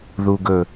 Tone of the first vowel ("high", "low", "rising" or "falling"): low